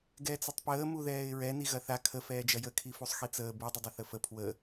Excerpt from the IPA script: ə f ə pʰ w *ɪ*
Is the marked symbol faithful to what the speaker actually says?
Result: no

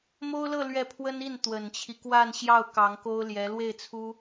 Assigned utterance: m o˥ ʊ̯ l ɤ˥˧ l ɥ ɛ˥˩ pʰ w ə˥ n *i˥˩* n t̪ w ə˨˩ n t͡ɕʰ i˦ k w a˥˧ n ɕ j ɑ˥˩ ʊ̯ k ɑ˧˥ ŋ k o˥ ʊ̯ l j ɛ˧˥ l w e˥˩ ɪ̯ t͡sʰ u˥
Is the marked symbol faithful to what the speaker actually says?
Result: yes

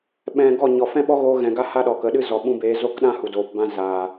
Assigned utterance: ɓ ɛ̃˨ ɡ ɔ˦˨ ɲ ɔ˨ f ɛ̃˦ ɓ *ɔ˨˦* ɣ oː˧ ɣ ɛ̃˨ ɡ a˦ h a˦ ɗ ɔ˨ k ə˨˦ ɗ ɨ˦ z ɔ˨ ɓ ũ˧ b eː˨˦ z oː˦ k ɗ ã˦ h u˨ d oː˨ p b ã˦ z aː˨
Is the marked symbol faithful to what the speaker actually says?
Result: no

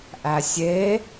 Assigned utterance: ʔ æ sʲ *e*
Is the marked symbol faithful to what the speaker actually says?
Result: yes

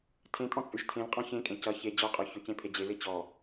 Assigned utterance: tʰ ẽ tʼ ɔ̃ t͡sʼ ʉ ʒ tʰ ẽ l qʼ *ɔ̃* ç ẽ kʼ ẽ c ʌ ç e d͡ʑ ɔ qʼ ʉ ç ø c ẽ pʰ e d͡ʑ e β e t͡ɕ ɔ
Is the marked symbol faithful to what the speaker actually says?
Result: yes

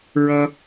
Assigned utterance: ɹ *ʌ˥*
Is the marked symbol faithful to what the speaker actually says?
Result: yes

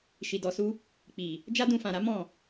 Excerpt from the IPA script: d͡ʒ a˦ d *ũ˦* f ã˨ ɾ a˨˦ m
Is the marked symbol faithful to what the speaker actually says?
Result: no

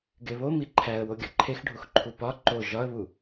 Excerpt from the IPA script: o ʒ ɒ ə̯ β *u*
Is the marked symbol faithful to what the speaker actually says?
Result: yes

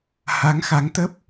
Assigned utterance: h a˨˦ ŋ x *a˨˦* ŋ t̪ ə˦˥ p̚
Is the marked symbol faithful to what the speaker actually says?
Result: yes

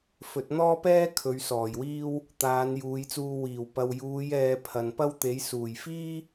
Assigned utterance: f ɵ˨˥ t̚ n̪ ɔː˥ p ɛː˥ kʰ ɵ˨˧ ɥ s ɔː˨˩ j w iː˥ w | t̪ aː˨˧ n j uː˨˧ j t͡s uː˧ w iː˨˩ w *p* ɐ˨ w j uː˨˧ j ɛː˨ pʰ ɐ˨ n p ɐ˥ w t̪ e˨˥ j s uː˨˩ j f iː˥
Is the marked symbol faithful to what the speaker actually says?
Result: yes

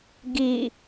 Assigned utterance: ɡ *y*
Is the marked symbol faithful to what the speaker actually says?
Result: no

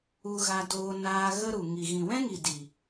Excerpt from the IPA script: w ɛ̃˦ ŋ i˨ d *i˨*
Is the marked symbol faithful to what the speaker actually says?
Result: yes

